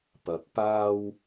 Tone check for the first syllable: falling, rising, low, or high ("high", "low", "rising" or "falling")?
low